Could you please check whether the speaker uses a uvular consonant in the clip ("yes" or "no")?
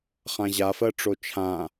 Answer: yes